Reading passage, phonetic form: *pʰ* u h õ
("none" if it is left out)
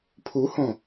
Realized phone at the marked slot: pʰ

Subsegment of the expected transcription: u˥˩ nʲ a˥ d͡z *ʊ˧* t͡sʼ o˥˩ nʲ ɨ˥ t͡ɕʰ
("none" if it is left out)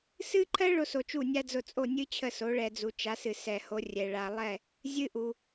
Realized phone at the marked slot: ʊ˧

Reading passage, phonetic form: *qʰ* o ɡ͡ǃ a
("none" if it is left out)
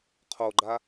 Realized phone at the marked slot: qʰ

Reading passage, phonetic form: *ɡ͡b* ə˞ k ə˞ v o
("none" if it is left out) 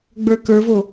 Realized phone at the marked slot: ɡ͡b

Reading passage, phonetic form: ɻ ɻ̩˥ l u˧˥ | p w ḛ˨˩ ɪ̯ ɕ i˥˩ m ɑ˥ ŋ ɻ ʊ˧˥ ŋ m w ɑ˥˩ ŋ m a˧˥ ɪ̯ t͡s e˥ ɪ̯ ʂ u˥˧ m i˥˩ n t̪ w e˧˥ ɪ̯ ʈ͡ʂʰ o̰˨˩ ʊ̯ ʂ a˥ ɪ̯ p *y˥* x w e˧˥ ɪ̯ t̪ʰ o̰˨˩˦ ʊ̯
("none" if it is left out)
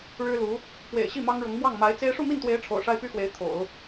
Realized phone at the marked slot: y˥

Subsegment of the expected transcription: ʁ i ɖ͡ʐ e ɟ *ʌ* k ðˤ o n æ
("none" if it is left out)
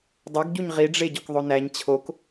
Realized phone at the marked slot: ɒ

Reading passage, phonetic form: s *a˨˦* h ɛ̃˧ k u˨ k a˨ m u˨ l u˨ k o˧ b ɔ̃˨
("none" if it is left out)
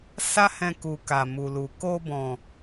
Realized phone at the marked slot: a˦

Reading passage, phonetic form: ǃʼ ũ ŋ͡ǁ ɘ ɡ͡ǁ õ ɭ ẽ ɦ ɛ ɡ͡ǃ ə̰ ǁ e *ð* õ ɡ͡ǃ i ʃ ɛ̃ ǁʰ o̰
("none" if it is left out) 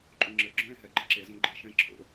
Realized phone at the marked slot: z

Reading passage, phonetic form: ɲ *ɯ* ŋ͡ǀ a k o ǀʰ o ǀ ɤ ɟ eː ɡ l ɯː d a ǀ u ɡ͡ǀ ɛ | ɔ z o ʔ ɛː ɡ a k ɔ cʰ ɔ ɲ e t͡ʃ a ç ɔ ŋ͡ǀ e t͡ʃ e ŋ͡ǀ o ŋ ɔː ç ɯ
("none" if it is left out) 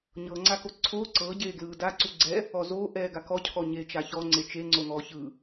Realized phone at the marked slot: ɤ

